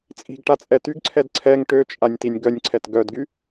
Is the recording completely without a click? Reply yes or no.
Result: no